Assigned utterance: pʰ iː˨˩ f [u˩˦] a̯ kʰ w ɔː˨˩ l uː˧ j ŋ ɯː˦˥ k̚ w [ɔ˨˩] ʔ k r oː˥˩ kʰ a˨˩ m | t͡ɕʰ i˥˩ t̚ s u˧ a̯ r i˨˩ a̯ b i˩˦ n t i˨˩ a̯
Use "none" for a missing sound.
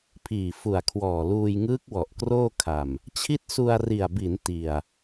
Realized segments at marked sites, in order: u˨˩, ɔ˨˩

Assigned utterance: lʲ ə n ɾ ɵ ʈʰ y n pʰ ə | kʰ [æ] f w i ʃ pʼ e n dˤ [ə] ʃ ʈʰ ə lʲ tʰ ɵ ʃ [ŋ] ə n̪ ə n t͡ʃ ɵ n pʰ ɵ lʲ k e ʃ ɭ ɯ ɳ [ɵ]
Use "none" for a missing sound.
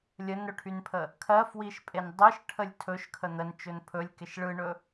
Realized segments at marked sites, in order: ɜ, ɯ, kʰ, ɵ

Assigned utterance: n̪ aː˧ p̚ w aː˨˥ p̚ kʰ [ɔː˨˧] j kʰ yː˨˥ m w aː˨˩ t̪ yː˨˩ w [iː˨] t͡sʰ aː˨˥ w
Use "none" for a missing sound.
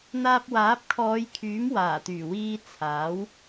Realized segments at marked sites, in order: ɔː˨˧, iː˧

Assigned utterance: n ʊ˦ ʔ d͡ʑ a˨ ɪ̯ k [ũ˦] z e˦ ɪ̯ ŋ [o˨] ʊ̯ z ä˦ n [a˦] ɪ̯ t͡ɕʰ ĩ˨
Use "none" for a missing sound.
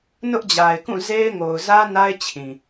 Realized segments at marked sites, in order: ũ˦˨, o˨, a˦

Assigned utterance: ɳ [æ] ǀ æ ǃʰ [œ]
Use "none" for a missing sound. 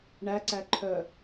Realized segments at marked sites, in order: æ, œ

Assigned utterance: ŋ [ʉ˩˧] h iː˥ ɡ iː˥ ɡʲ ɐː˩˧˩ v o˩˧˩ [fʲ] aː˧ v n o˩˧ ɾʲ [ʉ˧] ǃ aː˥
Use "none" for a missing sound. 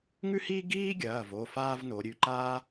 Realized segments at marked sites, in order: ʉ˥, f, ʉ˩˧˩

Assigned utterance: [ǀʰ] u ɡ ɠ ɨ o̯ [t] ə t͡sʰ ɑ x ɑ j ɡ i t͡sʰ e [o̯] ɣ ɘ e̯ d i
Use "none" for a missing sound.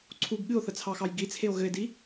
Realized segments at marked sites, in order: ǀʰ, θ, o̯

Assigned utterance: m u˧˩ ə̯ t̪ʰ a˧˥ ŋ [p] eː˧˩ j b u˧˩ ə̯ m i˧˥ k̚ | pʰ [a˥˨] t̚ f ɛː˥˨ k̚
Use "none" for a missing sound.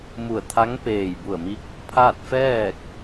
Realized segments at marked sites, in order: p, a˥˨

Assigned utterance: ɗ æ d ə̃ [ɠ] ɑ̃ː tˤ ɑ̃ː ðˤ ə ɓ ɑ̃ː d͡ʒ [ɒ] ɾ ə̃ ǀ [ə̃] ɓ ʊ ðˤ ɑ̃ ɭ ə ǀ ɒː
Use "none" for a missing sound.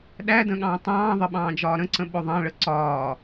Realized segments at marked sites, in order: ɠ, ɒː, ə̃

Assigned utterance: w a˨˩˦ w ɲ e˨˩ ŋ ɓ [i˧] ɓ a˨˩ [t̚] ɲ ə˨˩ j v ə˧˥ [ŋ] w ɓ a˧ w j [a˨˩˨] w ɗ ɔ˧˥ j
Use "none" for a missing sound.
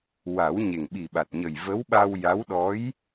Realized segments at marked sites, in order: i˨˩, t̚, none, a˧˥

